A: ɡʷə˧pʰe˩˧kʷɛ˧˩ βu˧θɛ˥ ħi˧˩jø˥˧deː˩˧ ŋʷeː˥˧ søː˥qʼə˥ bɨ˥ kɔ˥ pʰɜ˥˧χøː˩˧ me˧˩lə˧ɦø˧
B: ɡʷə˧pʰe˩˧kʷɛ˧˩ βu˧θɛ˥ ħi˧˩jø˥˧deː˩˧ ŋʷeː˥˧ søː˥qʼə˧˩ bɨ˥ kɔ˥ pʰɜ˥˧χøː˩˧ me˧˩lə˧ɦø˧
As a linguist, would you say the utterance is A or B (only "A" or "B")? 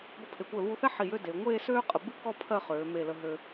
B